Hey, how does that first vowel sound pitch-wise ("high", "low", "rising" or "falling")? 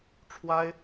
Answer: high